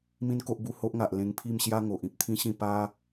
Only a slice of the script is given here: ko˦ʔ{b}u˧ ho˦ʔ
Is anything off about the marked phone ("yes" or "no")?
no